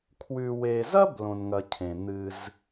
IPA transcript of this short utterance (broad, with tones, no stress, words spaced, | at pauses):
kʰwʉ˨we˨zɐ˥b lõ˨nŋɐ˨cʰẽ˩ n̪ɨ˨z